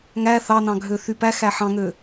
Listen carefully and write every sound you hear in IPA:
ŋ æ θ ɑ n ɑ̃ ɡʱ ø θ y p æ x æ ħ ɑ̃ ŋ ø

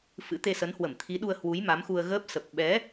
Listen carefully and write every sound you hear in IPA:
f ɨ̰˧˥ t̪ e˧ s ə˨˦ n h w ə˧˩ m t̪ʰ i˨˦ ɗ u˧ ə̯ h w u˨˦ j m a˨˦ m x u˧ ə̯ ɣ əː˦˥ p̚ s ə˨˩ p̚ ɓ ɛ˨˦

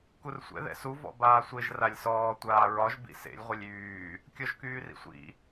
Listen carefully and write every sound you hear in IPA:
k u r sʷ ɛ̰ ð ɛ̰ s u v ɔ̰ b aː sʷ e ʒ r a lʲ s ɔː tʷ aː ɹ ɒ ʒ b ḭ s ḛ lʲ ʁʷ ɛ lʲ yː | kʲ ɔ ʒ k yː r ḭ sʷ ḭ

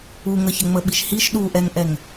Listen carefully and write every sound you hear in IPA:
u ŋ ə ç ə ŋ͡m ə ɓ i ʃ h i ʃ ɗ u ʔ ɛ ŋ ʔ ɛ ŋ

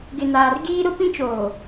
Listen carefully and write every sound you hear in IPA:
ɡ ɪ˨ n aː˨ r ɡ iː˦ ɾ ʊ˦ p ĩ˦ t͡ʃ oː˨

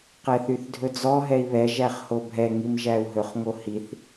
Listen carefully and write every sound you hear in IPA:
q ɛ θ y θ dʱ ɵ d͡z ɔ ɦ ɛ i̯ β ɛ ʒ æ χ h o bʱ ɛ ŋ i m ʒ æ u̯ ɦ ɵ χ ŋ o h i θ

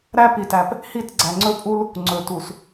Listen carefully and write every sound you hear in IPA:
ɾ æ˦ p i˨ t æ˨ p | h i˦˨ t ɡ͡ǀ æ˨ ŋ͡ǀ ɵ˦ pʼ u˦ l | ŋ͡ǀ ɵ˨ t u˨ s

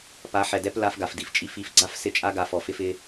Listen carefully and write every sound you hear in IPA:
p a˨˦ ħ ɛ˨ d ɛ˦ p l a˦ f ɡ a˨ f d i˨ f t͡ʃʼ i˦ f i˨ f ɡ͡ǀ a˦ f s ɪ˦˨ t͡ʃʼ a˦ ɡ a˨ f ɔ˨ f ɪ˦ f ɪ˦

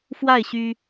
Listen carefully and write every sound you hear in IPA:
f w a˥˩ ɪ̯ ɕ y˥

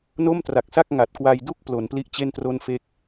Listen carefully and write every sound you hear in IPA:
n o˥˩ m t r a˨˩ k̚ s a˥˩ k̚ ŋ a˨˩ t̚ k w a˧ j d u˥˩ k̚ p l o˩˦ n p l i˦˥ ʔ t͡ɕ e˥˩ n t r o˥˩ n f e˥˩ k̚

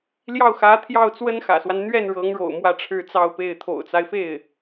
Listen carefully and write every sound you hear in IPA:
l j ɑ˥˩ ʊ̯ x ä˧˥ t̪ʰ j ɑ˥˩ ʊ̯ t͡s w ə˥ n x ä̰˨˩ s w a˦ n n̪ ɥ ɛ˥˩ n ɻ ɤ˧˥ ŋ ɻ o̰˨˩ ʊ̯ m w ä˥˧ ʈ͡ʂʰ ɻ̩˥˧ t͡s ɑ˥˧ ʊ̯ p e˥˩ ɪ̯ t̪ʰ o̰˨˩ ʊ̯ t͡s a˦ ɪ̯ f e˥˩ ɪ̯

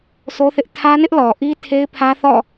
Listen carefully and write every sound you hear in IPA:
s o˦ θ ɪ˦ ʔ tʰ ä˦ n ɪ˦ ʔ l ɔ˨ ʔ i˦ tʰ e˦ ɪ̯ pʰ ä˦ θ ɔ̰˦˨

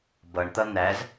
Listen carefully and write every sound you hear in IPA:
b ʌ ɳ t̪ ʌ n̪ æ z

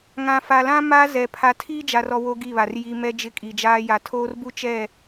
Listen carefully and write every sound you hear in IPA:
ŋ ã˨ f a˨ l ã˦ m a˦ z ɛ˨ pʰ a˨ tʰ iː˦ d͡ʒ a˨ r ɔ˨ w o˦ ɡ i˦˨ β a˨ r j i˨ m ɛ˦ d͡ʒ ɪ˦ kʼ i˨ d͡ʒ aː˦ j a˨ tʰ oː˦ r b u˦ t͡ʃ ɛ˦˨

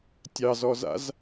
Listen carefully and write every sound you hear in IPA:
tʲ ɑ z ɔ z a̰ z

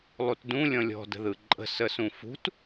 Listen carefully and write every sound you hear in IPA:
lˠ u t d ũ lʲ ɔ̃ lʲ ɔ̤ d ə̤ ð ɯ ǃʼ ə̤ s ə s ũ f ṳ t

